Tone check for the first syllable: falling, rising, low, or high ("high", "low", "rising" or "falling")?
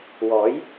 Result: rising